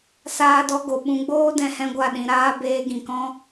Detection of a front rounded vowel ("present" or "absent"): absent